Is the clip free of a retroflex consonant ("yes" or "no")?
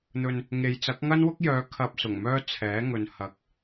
yes